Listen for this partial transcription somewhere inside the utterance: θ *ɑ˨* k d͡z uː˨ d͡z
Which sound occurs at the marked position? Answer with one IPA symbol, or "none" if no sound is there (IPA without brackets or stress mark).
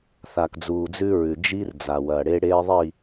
a˨